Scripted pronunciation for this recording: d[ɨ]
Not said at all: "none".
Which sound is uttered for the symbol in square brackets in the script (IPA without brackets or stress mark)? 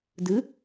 ɨ